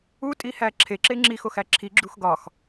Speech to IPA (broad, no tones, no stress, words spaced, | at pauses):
utʼihæ ǁʰeǁe ŋ͡ǁixoxæ ǁʰiɡ͡ǁux ɡɒx